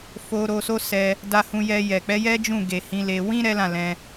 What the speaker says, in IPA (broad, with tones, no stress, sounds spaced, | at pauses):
f o˧ ɾ o˧ s o˦ s ɛ˧ | d a˧ h ũ˧ j ɛ˧ j ɛ˨ k͡p ɛ˨˦ j ɛ˦ d͡ʒ ũ˦˨ ɡ e˨ h ĩ˨˦ l e˧ w ĩ˦ ɾ ɛ˦ l ã˦˨ l ɛ̃˧